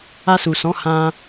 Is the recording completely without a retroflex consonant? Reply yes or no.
yes